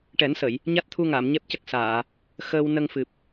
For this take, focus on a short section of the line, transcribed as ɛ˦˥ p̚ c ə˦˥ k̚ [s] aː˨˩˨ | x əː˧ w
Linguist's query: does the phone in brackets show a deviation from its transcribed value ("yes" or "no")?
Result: no